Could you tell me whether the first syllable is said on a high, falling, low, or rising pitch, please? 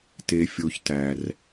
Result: high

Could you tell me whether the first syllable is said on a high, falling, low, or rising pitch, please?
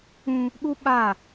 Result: high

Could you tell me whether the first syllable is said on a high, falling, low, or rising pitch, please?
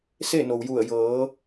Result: falling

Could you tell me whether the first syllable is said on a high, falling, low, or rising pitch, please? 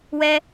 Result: high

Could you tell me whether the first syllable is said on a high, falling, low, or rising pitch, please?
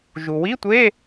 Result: low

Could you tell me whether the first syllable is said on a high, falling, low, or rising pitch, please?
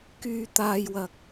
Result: low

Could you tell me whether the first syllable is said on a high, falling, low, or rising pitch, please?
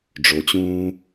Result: low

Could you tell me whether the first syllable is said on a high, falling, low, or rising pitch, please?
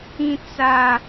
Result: high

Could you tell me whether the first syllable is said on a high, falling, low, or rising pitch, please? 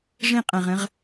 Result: falling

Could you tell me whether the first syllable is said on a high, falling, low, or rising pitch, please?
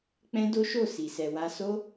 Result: high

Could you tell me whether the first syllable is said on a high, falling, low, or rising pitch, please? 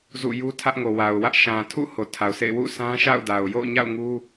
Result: falling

